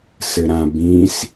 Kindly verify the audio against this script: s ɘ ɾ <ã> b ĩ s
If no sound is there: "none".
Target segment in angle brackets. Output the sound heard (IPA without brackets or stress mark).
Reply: ã